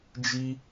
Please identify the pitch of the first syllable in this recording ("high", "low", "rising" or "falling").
high